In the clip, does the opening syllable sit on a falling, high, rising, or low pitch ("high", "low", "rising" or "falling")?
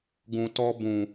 low